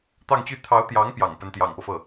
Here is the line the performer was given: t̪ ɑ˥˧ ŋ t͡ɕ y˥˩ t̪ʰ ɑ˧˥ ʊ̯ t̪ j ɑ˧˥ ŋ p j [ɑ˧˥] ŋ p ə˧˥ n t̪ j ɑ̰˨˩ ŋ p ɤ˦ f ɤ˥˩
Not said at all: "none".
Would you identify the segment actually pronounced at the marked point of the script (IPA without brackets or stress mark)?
ɑ̰˨˩